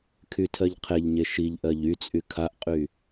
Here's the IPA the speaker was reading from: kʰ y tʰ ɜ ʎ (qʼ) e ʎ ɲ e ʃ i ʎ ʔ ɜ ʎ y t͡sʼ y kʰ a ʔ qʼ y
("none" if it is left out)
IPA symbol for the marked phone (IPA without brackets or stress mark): qʰ